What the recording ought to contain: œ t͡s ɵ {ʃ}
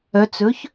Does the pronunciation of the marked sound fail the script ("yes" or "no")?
yes